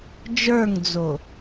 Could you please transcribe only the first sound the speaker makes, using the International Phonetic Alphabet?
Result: d͡ʒ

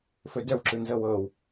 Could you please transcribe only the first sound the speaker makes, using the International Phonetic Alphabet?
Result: f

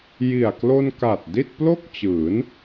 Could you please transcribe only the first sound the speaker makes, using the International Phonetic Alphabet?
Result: j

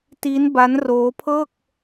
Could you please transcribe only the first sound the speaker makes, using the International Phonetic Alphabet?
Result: t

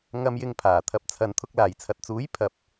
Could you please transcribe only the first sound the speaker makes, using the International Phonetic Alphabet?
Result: ŋ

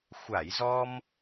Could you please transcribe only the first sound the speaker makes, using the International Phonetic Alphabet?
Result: xʷ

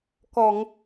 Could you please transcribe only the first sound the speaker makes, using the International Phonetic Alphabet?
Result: k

